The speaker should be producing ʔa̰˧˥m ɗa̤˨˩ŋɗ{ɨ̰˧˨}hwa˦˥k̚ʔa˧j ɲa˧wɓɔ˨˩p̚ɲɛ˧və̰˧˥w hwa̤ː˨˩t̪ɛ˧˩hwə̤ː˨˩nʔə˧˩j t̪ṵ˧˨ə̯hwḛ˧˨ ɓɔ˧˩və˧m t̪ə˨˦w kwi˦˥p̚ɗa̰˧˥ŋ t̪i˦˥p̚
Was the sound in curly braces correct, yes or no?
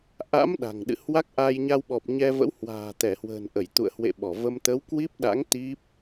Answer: yes